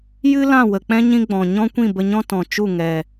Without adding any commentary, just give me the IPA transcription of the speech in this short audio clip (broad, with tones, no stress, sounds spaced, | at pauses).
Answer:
j ɨ˦ l ã˦˨ w ə˨ k͡p ɛ̃˦ ɲ ĩ˦ ɡ͡b ɔ̃˨ ɲ ɔ̃˦ kʷ ĩ˦˨ b ə˧ ɲ ɔ̃˦ t ɔ̃˨ t͡ʃ u˦˨ ŋ ɛ˨